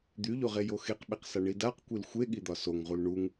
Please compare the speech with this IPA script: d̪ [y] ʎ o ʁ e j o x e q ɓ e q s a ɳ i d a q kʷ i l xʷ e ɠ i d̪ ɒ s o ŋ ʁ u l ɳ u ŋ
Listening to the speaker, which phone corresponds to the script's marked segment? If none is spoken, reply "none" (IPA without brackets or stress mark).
y